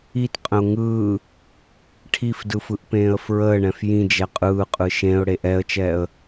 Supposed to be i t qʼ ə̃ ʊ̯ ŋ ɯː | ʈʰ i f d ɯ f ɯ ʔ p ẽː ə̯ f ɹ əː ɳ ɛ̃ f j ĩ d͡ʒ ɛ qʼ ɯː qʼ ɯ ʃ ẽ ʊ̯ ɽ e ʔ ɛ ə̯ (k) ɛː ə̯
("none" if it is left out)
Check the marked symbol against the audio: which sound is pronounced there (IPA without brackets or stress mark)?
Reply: t͡ʃ